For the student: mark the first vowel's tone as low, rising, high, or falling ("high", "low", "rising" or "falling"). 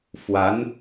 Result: rising